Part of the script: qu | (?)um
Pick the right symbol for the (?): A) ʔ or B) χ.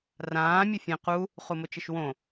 B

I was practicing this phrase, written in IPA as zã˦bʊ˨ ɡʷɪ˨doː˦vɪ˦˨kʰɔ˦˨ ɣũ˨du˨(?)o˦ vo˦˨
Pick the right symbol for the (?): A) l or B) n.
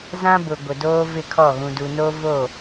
B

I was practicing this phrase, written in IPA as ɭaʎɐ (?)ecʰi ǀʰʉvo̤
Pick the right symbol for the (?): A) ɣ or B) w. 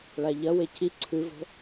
B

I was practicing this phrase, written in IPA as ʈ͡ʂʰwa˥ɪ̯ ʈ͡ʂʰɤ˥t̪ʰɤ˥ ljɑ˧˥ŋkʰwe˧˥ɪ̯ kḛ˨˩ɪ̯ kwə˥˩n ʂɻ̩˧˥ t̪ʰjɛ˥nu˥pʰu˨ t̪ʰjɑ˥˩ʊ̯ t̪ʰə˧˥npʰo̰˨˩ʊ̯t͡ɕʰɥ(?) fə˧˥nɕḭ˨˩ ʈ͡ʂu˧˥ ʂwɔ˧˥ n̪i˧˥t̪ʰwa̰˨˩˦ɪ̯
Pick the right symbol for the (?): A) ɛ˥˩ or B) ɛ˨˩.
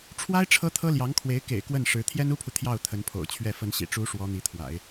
A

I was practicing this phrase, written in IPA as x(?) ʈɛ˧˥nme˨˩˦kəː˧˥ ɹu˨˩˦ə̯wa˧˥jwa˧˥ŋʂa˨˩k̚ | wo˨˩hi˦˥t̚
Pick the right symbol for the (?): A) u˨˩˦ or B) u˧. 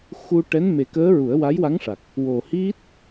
B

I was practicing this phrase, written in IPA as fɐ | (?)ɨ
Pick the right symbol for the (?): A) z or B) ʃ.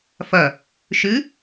B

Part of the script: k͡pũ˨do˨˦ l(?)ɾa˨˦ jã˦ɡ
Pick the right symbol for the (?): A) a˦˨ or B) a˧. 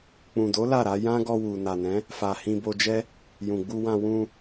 A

